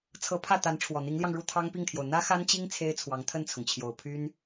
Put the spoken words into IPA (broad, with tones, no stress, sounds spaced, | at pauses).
t͡sʰ ɤ˧˥ pʰ ä˥˩ t̪ a˧˥ n ʈ͡ʂʰ w ɔ˨˩ n̪ i˧˥ ŋ l j ɑ˧ ŋ ɻ u˥˩ t̪ʰ ɑ˥ ŋ p i˥˩ ŋ t̪ʰ j o˩ ʊ̯ n̪ ä˥ x a˥ n t͡ɕ i˥ ŋ t͡sʰ e˥ ɪ̯ t͡sʰ w ɑ˧˥ ŋ t̪ʰ ə˥˩ n t͡sʰ ʊ˩ ŋ t͡ɕʰ j o˨˩ ʊ̯ pʰ y˥ n